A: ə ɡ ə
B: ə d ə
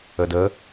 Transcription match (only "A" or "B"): B